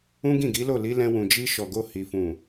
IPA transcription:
ũ˦ɡĩ˦˨ɡi˨˦ lo˦˨li˨˦lɛ̃˧ wũ˨ d͡ʒi˧ʃɔ˨ ɡo˧hi˨ fũ˨

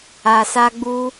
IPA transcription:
a˧sa˦ɡ͡bu˦

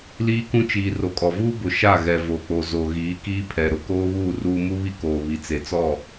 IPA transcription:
liː˦kũ˦t͡ʃiː˨ ro˨kʼɔ˨vuː˦ bʊ˨ ʃa˦˨ ɣɛ˨vo˨k͡po˨ zo˨ɣiː˨˦kiː˦pʰɛ˨ ɾʊ˨ koː˦βuː˦˨ ruː˦ mu˦βi˦koː˨ βi˨t͡se˨t͡sɔ˦˨

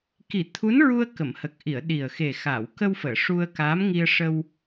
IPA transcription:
ki˨˩˦t̪ʰu˧˥nɹu˧ə̯ kə˨˩˨mhə˨˩k̚ ʔi˨˩˨ə̯ ɗi˨˩ə̯xe˨˩ xa˨˩˨w kə˧wfəː˨˩˨ ʂu˧ə̯kaː˧˥m ŋi˧ə̯ʂə˧w

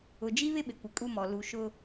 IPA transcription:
ʊ˨d͡ʒi˦βɪ˦ ɓɪ˨kʷɪ˨ kʼu˦mɔ˨ lu˨ʃʊ˦

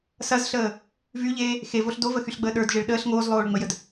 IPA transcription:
sɐzɬəː | vyʎeː | xevoɬ dovəxyɬɡ͡bəː ɗə˞dʒeɭ ɗəːɬ ŋoːzlˠoːɭŋ͡məjəd

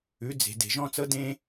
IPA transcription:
ʉ˨˦d͡ze̤˨ de̤˨ʒɔ̃˦ t͡sɤ˦dẽ˦

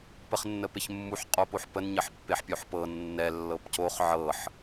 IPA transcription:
pəχnːəpeçmːuħ qʼopoħpən ɲəħpːeħpʲoħpɤ nːɛ lːɤpcoχ ʕɤħ

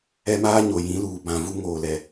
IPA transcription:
ɛ˦maː˦ ɲo˨jĩ˨˦luː˨ bã˨vu˦ ŋoː˨lɛ˨

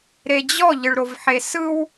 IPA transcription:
ɾed͡ʑɔ ʎɯɭɾovħesɯw

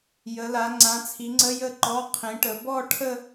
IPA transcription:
jə˨˦la˨˦ ŋ͡ǀã˨˦t͡sʰi˨˦ŋ͡ǀə˧˥˧ jə˥˧ǃɔ˧˥˧qʰĩ˨˦ʈə˨˦ bɔ˥˧ ʈʰə˥˧

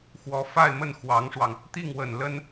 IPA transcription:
xwɔ˧˥fa˥˧ɪ̯ mə˥˩nxwɑ˧˥ŋʂwɑ˧ŋ | t̪i˥˩ŋwə˨˩nlə˥n

